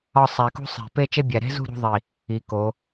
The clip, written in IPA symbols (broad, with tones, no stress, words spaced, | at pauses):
ɒ˥˧sˤæ˧kṳ˥ sˤe̤˧˩ pe˥˧ t͡ʃe˥bʲæ˧˩ ɾe̤˥zṳ˥˧ ɾṳ˥ðˤi˧˩ | i˩˧ko˩˧